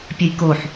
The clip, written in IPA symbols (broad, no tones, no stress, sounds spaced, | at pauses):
pʲ ə j k o ħ